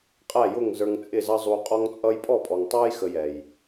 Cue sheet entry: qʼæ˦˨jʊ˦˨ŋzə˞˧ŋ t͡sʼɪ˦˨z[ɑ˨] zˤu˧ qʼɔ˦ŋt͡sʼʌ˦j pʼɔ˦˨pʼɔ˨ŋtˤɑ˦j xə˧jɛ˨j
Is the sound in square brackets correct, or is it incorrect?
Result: incorrect